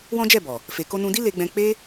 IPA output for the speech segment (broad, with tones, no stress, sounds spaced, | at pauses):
w ɔ̃˦ d͡ʒ ɛ˦˨ b ɔ˨ | f e˨ k o˧ n ũ˧ d i˦ l e˧ ɡ͡b ɛ̃˧ k͡p e˦